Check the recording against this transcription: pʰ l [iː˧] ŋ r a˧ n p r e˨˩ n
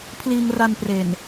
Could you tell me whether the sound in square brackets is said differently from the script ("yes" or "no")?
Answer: no